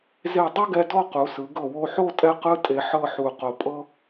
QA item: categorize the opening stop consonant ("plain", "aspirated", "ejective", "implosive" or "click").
plain